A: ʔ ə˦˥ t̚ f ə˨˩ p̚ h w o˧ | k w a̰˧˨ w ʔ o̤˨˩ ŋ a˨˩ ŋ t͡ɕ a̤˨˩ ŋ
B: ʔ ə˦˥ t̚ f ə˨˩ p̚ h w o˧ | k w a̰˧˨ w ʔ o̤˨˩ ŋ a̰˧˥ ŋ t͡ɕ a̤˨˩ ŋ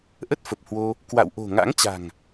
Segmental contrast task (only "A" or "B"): B